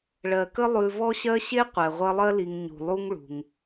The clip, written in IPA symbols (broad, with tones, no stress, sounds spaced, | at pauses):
ɭ ɜ˩ k ə˦ lˠ ʉ˨ v ɔ˦ ɕ ɜ˦ ɕ e˥ qʷ ɛ˩ ʁʷ ɐ˦ lˠ ɜ˥ l i˨ ŋ ɲ ṳ˩ lˠ u˦ ŋ ɭ ṳ˩ ŋ